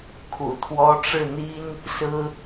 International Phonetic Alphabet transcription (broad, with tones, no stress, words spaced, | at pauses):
kʰṵ˨˩t̪ʰwɔ˥ ʈ͡ʂɻ̩˥˩n̪i˥n | sɹ̩˥